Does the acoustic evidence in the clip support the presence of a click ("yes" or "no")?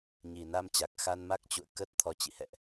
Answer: no